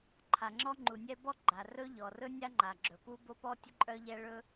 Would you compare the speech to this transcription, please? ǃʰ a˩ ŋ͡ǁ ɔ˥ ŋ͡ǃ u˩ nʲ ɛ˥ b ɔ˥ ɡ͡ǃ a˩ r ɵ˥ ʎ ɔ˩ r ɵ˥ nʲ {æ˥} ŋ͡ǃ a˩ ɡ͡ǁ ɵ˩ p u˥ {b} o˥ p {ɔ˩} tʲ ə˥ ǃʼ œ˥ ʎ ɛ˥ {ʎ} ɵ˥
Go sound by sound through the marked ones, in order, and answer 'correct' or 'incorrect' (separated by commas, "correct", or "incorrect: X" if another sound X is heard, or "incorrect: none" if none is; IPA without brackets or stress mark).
incorrect: a˥, correct, incorrect: ɔ˥, incorrect: ɭ